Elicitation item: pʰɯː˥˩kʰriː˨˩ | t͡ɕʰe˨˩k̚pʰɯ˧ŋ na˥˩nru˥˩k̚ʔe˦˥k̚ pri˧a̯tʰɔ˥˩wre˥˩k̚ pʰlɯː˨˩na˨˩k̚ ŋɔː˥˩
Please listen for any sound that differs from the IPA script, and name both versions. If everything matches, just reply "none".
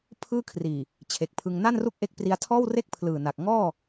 ɔ˥˩ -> ɔː˥˩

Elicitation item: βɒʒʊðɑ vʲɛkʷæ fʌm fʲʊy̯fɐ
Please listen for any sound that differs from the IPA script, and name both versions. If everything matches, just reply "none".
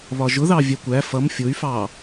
ɐ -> ɑ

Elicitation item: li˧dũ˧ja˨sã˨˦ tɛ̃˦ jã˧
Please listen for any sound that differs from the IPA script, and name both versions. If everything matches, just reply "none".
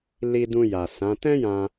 none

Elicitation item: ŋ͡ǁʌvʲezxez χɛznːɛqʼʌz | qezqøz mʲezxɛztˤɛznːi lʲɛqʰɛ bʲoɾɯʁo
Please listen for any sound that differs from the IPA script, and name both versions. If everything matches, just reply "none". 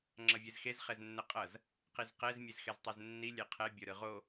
ø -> ɛ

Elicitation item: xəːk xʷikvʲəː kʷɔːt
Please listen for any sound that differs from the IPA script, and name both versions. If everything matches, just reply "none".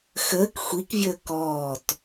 kʷ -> k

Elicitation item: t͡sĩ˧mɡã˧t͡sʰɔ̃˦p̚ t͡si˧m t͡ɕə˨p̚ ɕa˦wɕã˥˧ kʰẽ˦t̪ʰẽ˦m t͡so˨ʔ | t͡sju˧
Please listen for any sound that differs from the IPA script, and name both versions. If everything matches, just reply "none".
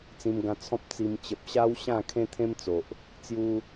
none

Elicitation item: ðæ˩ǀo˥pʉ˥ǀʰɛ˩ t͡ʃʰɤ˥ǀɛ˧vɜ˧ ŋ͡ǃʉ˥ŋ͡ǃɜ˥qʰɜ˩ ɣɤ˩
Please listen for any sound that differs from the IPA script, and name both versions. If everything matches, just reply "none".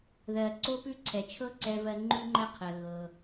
æ˩ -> ɜ˩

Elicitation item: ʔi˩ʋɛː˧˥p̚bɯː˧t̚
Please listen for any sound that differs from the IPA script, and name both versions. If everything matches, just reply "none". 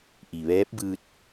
none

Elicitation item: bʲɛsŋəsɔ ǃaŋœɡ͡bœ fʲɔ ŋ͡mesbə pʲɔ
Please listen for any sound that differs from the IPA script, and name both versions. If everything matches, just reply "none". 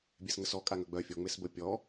ǃ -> kʼ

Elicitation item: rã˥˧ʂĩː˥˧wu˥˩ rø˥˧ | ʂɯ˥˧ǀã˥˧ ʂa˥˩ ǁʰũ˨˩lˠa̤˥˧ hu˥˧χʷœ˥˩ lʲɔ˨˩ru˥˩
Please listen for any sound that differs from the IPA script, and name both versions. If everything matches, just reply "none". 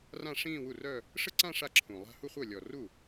ø˥˧ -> œ˥˧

